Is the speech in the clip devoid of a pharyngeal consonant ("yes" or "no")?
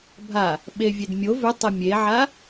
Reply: no